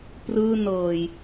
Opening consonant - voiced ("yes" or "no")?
no